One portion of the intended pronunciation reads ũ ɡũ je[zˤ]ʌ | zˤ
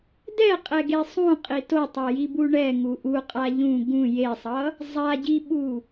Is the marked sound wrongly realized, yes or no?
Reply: yes